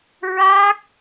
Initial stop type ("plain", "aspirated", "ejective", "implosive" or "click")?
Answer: plain